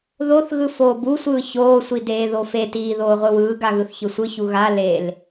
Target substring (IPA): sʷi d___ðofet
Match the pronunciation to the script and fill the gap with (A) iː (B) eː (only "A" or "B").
B